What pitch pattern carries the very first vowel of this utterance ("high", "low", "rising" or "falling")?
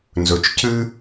low